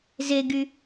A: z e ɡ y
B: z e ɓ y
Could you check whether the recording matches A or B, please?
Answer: A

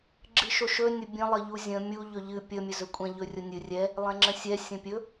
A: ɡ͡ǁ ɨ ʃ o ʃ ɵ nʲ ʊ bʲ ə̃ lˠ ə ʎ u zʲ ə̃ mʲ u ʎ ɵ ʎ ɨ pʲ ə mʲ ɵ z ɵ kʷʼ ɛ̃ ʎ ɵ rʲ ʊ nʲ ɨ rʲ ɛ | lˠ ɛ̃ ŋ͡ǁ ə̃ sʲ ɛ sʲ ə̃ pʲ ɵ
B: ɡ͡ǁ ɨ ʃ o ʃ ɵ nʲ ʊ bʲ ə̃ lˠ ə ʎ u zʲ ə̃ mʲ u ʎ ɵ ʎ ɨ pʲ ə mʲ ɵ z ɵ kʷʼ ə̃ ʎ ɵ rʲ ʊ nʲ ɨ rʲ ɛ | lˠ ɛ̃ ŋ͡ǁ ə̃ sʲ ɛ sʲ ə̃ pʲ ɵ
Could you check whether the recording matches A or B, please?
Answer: A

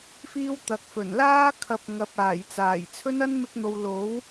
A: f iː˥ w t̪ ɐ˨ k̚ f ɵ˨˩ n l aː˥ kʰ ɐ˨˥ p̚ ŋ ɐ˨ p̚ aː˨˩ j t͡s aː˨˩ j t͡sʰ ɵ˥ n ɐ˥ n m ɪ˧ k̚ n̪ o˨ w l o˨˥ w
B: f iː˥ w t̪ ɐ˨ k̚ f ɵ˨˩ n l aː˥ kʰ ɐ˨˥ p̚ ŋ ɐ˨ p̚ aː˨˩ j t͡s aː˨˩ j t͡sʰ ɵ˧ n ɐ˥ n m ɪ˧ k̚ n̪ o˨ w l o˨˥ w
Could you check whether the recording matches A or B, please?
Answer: A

